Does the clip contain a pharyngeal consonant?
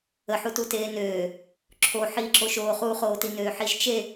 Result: yes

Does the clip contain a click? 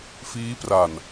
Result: no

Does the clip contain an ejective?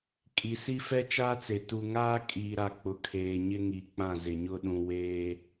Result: yes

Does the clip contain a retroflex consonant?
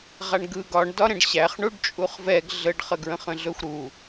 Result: yes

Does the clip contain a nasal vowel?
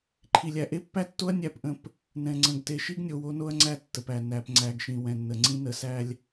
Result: yes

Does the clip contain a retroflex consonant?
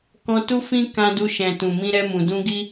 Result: no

